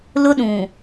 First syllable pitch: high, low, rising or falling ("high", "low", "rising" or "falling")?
high